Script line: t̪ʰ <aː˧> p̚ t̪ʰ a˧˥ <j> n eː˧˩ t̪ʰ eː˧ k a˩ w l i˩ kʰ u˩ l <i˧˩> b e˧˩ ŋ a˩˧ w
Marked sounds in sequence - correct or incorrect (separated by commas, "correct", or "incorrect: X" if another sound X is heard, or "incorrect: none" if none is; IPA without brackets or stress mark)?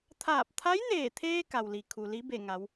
incorrect: aː˧˩, correct, incorrect: i˧˥